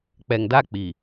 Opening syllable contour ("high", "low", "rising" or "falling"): low